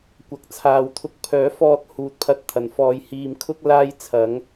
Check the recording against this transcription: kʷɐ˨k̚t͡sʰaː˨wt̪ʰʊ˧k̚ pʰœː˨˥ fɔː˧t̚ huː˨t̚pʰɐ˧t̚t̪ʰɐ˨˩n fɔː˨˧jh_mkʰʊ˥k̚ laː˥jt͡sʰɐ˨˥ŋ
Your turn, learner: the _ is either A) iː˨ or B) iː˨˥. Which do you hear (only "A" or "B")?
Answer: A